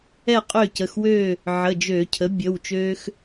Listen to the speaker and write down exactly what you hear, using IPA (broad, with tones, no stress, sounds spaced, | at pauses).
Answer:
ɛ˥˨ qʼ ø˥˨ c ə˩˧˩ x w ø˥˨ | ʕ ə˩˧˩ d͡ʒ ø˧˩˧ cʰ ə˩˥ bʲ ə˩˧˩ w t͡ʃ ø˦ x